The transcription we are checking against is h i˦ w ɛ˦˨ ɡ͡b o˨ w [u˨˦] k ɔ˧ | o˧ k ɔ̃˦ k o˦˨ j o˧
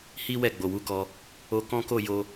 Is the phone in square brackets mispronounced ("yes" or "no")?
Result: no